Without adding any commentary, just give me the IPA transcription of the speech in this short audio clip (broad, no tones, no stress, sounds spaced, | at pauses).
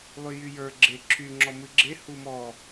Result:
lˠ y j y j ə˞ ɡ͡ǁ e ǁʰ y ŋ͡ǁ ɔ m ɨ ɡ͡ǁ e h u m ɔ